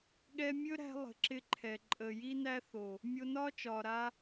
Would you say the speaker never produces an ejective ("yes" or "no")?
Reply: no